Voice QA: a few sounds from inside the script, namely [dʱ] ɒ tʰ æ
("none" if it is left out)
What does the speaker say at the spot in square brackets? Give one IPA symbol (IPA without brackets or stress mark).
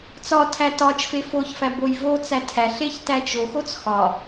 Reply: t͡s